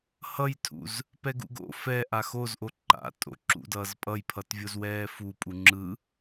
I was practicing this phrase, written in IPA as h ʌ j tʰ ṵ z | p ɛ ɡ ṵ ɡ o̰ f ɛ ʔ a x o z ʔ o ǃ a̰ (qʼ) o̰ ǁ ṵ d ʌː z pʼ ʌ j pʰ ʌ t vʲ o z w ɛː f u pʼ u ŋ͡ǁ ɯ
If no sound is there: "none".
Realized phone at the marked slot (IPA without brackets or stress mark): tʼ